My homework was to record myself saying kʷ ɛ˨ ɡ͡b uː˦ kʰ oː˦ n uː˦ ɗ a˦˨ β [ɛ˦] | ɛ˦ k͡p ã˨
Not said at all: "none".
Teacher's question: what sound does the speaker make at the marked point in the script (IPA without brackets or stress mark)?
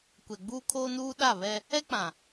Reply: ɛ˦